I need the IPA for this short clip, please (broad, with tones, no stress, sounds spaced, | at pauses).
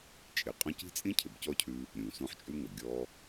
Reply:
t͡ʃʼ ɪ˨ qʼ ɔ̃˥ c i̤˥ t͡sʼ ĩ˥ cʰ ɪ˨ b c ɔ˥ cʰ ʉ˦ | ɾʲ ũ˩ s ũ˦ ħ t͡ʃʼ ʉ˥ ŋ ʌ˩ ɡʲ ɔ˦